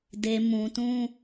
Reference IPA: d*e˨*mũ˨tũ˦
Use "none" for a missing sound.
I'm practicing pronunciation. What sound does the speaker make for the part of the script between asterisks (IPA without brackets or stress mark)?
e˨